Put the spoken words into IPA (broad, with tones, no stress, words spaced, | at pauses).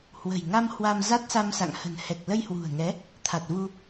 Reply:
hwə̤˨˩jŋa˧m hwa˧mza˦˥t̚sa˧msa̰˧˨ŋ hə̤˨˩nhɛ˨˩k̚lə˧j hwṳ˨˩ə̯ŋɛ˨˦ | t̪ʰa˨˩t̚vu˧